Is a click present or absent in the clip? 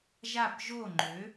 present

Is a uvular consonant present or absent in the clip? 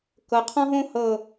present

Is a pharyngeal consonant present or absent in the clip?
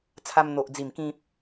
absent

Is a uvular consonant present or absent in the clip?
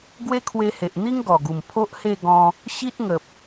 absent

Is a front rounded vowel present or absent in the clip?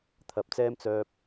present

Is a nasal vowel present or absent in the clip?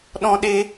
present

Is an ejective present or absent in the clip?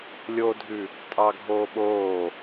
present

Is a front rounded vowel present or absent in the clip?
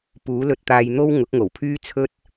present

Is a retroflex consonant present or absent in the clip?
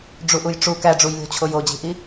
present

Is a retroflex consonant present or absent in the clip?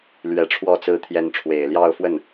present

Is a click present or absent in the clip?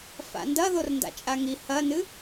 absent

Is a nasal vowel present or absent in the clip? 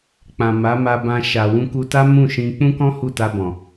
present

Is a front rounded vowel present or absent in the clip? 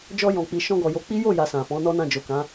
absent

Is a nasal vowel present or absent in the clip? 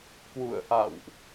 absent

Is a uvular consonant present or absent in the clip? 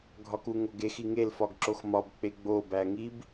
absent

